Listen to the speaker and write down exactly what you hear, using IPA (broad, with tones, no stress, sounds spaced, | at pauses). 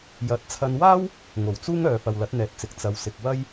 j ɐ˨˥ t̚ t͡sʰ ɐ˧ n w aː˥ w | ŋ o˨˩ w t͡s uː˥ ŋ œː˨ f ɐ˨ w l ɐ˨˥ t̚ n̪ ɛː˨ t̚ t͡s ɪ˨˥ k̚ t͡s ɐ˨ w s ɪ˨ k̚ w ɐ˥ j